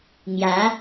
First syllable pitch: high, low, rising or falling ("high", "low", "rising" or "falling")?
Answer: rising